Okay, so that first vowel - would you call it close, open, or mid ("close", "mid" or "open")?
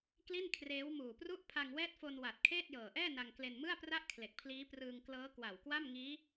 close